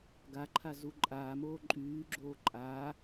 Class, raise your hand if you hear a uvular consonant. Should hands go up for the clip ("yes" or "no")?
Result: no